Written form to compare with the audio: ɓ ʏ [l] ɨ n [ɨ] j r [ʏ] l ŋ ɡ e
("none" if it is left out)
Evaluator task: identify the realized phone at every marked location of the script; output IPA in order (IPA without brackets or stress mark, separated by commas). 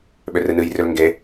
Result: r, ɨ, ʏ